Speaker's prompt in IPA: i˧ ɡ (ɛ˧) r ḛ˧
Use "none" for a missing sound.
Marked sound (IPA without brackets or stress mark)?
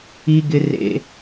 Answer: ɪ˧